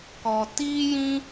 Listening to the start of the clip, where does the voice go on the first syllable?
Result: low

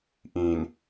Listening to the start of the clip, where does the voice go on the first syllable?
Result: low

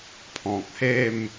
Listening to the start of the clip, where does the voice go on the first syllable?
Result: low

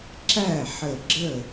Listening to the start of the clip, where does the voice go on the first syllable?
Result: falling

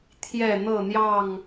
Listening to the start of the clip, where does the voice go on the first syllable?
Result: falling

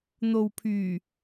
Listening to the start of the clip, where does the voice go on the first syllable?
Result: low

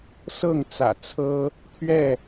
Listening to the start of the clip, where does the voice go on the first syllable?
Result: falling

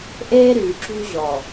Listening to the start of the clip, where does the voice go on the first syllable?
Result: high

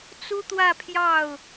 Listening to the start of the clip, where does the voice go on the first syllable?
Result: high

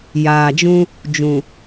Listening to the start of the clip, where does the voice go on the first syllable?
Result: low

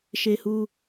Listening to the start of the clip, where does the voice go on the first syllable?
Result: high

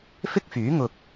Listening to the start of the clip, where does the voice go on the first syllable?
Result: high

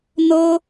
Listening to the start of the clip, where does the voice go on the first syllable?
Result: high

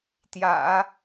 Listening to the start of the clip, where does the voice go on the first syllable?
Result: low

